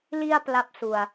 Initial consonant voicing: voiced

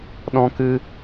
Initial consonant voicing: voiced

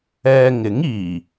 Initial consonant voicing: voiced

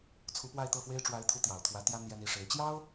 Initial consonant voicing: voiceless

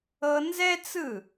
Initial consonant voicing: voiced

